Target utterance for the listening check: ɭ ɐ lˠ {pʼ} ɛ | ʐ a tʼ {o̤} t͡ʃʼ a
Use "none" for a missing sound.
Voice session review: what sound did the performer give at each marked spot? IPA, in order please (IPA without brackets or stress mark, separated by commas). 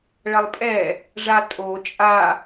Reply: pʼ, o